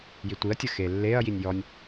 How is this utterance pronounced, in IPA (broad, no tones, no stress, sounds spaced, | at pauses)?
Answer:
j i tʷ i ɐ̯ tʲ ə x e lː e ɐ̯ j i nʲ j ɔ nʲ